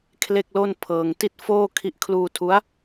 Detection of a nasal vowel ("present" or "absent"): absent